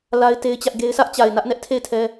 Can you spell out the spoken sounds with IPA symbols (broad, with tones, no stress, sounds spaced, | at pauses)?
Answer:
l a˦ ɪ̯ t e˦ ɪ̯ t͡ɕ ä˦ ʔ ɡ e˦ ɪ̯ sʰ ä˦ ʔ t͡ɕ a˨ ɪ̯ n ä˦ ʔ n ɛ˦ ʔ tʰ e˦˨ ɪ̯ tʰ ɛ˦